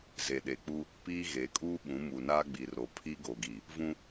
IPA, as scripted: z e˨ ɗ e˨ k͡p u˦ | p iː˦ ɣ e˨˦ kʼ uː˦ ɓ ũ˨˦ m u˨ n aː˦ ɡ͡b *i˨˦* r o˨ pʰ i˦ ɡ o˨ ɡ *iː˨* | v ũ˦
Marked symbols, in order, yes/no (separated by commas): no, no